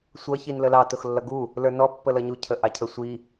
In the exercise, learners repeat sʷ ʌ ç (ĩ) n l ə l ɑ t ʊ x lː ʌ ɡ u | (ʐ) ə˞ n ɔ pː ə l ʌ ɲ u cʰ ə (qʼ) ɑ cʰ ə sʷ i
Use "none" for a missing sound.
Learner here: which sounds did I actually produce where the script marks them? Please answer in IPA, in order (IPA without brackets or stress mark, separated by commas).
i, l, ʔ